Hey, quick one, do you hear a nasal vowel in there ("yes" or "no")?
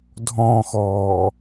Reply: yes